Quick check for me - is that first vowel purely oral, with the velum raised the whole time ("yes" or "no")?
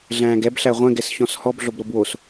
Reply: no